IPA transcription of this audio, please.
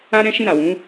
a˦ ɾ ɛ̃˦ ʃ ĩ˦˨ ɾ a˨ w ũ˨˦

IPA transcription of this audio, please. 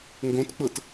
ŋ ɡ õ t k͡p ɤ t

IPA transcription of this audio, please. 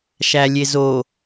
ʃ æ lʲ e z o

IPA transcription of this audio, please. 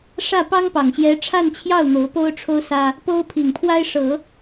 ʂ ä˥˩ p ɑ˥ ŋ p ɑ˨˩ ŋ ɕ j ɛ˧˥ ʈ͡ʂʰ a˥˧ n t͡ɕʰ j ɑ˥˩ ʊ̯ n̪ o˧˥ ʊ̯ p o˥ ʊ̯ ʈ͡ʂʰ o˥ ʊ̯ s ä˥ | p o˥ ʊ̯ pʰ i˨˩ ŋ pʰ w a˥ ɪ̯ ʂ ɤ˨˩˦

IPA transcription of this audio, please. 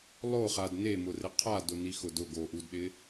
lˠ o χ a d n e m ʊ r ɪ qʰ a d ʊ n i x ʊ d ʊ ɡ o ʔ u d ɗ ɪ

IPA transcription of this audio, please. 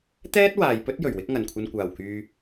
t̪ ɛː˥ t̚ w aː˨ j p ɵ˥ t̚ j ɵ˨˩ ɥ w ɪ˥ k̚ ŋ ɐ˨˩ n kʷʰ ɐ˧ n kʷ aː˨˩ w k yː˨

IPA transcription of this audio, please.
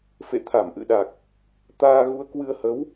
f ḛ˧˨ t̪ʰ a˧˩ m ʔ ɨ̰˧˨ ɗ a˨˩ k̚ | t̪ aː˧ ɣ u˨˦ ə̯ k w ɨ˧ ə̯ h ə˨˦ w

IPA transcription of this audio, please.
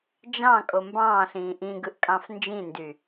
d͡ʒ ɑ̃ kʼ o m b ɑ̃ː ɬ ĩː ʔ ĩ ɡ ɯ ʔ kʼ ɑ̃ f n d͡ʒ ĩ n d y

